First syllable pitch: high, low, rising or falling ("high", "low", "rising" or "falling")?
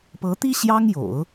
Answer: rising